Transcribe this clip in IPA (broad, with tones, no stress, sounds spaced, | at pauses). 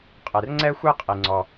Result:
qʼ e˩ r ŋ͡ǀ ɛ˥ xʷ e˥ qʼ i˩ ŋ͡ǀ ɔ˩